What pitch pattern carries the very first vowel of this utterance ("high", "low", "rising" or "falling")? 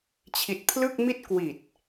low